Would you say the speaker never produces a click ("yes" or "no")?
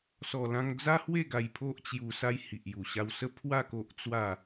yes